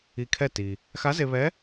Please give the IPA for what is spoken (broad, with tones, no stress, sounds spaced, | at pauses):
i˧ kʰ ɛ˥˨ t i˩ | x a˧˥ z e˧ β ɛ˧˥